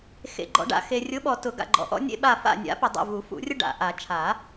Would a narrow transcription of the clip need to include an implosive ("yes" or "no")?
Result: yes